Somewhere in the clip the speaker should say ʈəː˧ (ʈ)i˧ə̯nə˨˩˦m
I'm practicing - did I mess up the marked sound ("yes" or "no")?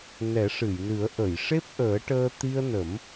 yes